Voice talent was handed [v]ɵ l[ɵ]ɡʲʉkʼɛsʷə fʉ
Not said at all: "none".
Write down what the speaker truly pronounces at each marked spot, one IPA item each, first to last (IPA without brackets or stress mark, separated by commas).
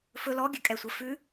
f, ɔ